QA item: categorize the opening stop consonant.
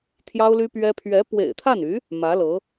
aspirated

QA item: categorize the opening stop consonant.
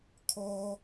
aspirated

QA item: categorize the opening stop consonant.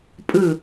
ejective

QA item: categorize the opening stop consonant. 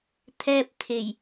aspirated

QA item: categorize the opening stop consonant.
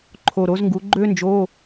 click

